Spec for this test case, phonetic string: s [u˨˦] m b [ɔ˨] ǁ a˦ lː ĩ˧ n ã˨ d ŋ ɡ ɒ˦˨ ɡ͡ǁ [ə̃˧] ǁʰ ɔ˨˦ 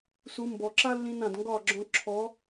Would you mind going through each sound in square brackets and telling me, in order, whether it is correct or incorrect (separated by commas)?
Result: correct, correct, incorrect